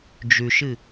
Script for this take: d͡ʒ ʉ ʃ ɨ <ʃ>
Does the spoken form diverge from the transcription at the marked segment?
yes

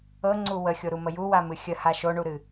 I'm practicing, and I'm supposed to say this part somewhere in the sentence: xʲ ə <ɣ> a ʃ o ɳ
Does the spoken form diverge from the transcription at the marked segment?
yes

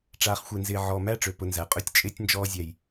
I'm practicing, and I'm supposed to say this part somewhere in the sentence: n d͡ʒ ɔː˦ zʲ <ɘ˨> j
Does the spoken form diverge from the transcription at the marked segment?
yes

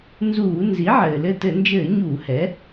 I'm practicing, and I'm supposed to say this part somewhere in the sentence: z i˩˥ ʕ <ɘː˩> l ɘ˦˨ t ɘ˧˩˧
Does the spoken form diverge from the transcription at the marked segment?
no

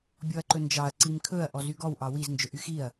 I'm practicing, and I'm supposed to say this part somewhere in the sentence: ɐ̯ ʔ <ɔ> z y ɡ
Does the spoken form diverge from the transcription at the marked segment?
no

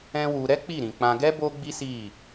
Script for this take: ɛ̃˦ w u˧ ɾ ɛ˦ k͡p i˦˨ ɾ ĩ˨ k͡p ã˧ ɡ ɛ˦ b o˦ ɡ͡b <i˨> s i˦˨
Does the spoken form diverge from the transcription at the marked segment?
yes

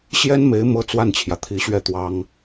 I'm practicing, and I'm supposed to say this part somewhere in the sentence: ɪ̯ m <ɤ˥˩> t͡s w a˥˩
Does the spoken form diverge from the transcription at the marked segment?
yes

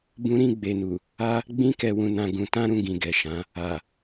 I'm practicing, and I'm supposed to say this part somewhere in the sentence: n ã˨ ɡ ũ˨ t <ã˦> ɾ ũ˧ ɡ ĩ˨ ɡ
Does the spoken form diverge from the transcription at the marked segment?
yes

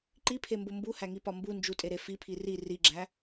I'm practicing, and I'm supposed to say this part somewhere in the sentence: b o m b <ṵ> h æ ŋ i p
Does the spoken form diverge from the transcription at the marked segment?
yes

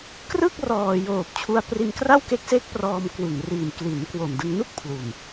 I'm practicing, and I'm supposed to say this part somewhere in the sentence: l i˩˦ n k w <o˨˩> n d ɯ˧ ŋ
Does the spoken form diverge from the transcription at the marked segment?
no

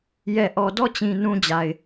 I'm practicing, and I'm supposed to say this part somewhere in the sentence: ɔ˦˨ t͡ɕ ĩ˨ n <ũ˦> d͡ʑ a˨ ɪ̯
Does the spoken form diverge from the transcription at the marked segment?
no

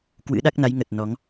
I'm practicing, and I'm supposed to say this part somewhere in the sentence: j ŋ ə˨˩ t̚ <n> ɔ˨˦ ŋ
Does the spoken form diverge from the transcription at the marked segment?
no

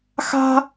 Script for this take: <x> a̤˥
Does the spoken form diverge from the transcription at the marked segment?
no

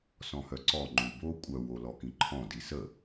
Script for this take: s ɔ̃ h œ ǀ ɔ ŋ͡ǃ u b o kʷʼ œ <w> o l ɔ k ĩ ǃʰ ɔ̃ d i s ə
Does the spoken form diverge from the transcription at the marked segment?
no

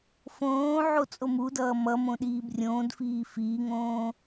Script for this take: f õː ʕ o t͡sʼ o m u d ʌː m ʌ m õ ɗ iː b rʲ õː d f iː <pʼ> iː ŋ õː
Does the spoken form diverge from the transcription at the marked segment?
yes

